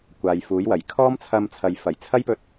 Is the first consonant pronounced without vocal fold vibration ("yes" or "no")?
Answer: yes